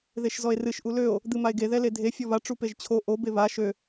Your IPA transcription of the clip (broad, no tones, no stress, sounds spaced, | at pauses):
ð e ʃ z ɔ e̯ r ɨ ʃ ʔ u l ø o̯ | d̪ ɨ m a e̯ ɡ e ð ɛ l e dʱ e fʲ ɔ β a ʈ͡ʂ u p e ʒ t͡ɕʰ o ʔ o b e β a ʃ ø